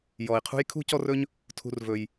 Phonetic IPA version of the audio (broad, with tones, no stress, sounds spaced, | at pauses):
j ɔ˩ i̯ qʰ ṳ˥ j kʰ ṳ˥ c ɔ˦ r ɵ˦ ɲ | tʰ ṳ˨ r v ɵ˩ j